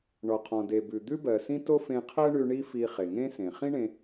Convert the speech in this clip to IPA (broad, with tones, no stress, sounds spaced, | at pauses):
ɳ ɔ˩ qʰ ɔ̃˩ d e˩ b ʉ˩ d̪ ʉ˥ b ɜ˩ s ĩ˥ t o˥ f ẽ˧ qʰ ɜ˥ ɳ ʉ˧ ɳ i˥ f i˧ χ e˩ ŋ ẽ˥ s ẽ˩ χ ĩ˥ ɳ ẽ˧